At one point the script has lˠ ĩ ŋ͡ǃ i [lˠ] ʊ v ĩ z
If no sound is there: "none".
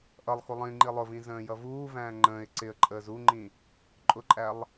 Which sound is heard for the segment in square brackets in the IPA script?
lˠ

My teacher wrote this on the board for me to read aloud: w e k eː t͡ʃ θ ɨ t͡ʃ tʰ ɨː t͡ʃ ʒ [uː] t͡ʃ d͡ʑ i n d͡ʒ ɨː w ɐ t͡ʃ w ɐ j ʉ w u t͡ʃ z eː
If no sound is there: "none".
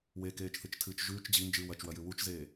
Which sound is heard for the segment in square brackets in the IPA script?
ʉː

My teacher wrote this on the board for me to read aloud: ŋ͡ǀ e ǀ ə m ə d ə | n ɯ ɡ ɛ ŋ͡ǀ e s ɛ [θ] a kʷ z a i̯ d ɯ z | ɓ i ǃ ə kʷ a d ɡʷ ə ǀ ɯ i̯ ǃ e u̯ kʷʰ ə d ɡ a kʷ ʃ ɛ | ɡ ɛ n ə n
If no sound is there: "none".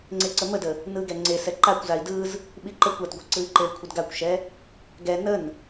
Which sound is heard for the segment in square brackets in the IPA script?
ǃ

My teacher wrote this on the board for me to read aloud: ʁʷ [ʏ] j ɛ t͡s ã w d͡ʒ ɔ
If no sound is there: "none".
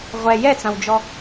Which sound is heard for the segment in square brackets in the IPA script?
ɛ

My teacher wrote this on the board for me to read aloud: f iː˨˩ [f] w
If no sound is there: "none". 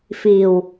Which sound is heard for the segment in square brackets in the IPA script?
none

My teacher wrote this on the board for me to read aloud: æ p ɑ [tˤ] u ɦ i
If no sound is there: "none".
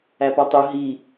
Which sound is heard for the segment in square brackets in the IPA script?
tˤ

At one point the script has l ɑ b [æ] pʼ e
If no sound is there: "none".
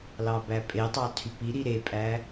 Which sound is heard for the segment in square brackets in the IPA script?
æ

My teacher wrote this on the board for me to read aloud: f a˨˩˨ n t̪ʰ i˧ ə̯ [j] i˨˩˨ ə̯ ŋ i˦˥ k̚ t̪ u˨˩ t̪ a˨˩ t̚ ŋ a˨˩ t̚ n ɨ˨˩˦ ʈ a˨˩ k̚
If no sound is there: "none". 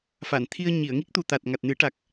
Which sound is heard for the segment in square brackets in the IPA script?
ɲ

